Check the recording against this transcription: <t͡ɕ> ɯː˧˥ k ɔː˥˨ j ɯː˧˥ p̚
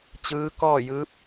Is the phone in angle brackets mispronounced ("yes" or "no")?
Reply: no